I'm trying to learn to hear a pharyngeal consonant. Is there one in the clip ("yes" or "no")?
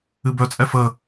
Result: no